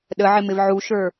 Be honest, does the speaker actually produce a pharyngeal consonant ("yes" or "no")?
yes